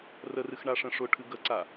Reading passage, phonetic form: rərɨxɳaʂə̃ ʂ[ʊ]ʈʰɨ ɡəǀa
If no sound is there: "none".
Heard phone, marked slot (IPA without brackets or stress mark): ʊ